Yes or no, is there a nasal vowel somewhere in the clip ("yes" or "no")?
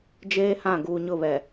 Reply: yes